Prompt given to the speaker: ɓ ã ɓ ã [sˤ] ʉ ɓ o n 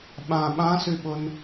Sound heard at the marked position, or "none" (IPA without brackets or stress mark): s